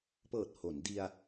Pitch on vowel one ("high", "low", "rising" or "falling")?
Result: low